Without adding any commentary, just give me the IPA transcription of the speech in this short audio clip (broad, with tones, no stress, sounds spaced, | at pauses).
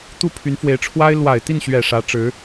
t̪ u˥˩ pʰ y˧˥ n f w e˧˥ ɪ̯ ʈ͡ʂʰ w a˥ ɪ̯ l w a˨˩ ɪ̯ t̪ i˥˩ n ɕ ɥ ɛ˨˩ ʂ ä˧˥ ʈ͡ʂ ɻ̩˧˥